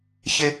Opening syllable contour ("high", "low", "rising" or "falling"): high